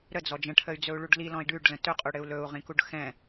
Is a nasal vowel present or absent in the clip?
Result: present